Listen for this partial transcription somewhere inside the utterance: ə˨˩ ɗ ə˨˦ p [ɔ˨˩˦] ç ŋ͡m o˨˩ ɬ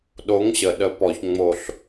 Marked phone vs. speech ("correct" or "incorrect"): correct